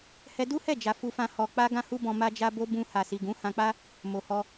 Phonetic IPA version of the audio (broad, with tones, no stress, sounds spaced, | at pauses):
h ɛ˧ d u˦ h ɛ˦˨ d͡ʒ a˨ f u˧ f ã˧ h ɔ˨ k͡p a˧ ɡ ã˦ h u˦ b ɔ̃˧ m a˧ d͡ʒ a˧ b o˧ b ũ˧ h a˨ s i˨ ɡ ũ˨˦ h ã˧ k͡p a˦ | m o˨ h ɔ˧